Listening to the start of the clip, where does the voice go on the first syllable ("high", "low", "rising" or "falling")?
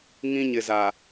high